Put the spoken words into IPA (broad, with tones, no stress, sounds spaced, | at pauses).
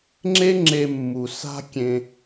ŋ͡ǁ e˦ ŋ͡ǁ e˧ mː u˨ s a̤˦ kʲ ẽ˧